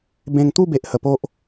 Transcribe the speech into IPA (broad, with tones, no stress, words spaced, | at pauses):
bẽ˧ŋt̪u˥˧be˨ʔ hə˧po˦ʔ